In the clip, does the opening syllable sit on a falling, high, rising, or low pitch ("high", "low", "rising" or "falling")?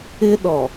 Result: high